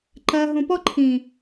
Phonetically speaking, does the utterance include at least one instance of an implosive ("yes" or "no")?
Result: no